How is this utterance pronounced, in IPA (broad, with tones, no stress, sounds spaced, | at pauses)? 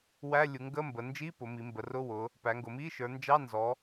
w æ˧˥˧ lʲ u˩˧ ŋ ɡ ə˧˥˧ m b ə˩˧ n d͡ʒ i˧˥˧ p ʊ˩˧ m i˩˧ m b ə˩˧ r ʊ˧˥˧ w ʊ˩˧ | p æ˩˧ ŋ ɡ ʊ˩˧ m i˧˥˧ ʃ ə˞˩˧ n d͡ʒ ɑ˧˥˧ n z ɔ˩˧